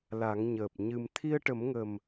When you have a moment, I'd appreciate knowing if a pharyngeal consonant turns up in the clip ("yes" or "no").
no